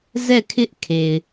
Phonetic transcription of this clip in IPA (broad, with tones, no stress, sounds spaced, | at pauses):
z ɛ˦˨ kʰ ɪ˦ ʔ kʰ e˨ ɪ̯